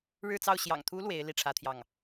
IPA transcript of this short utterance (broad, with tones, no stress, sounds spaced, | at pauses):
ɻ ɻ̩˥˧ t͡s ɑ˥˩ ʊ̯ ɕ j ɑ̰˨˩ ŋ t̪ʰ u˧˥ l w e˧˥ ɪ̯ l i˥˩ ʈ͡ʂʰ ä˥ t̪ʰ j ɑ˥˩ ŋ